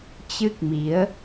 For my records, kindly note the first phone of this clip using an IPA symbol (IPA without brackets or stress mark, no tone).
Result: t͡ɕ